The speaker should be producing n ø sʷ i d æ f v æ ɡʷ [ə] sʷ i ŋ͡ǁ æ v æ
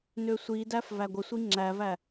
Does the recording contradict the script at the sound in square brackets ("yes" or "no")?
no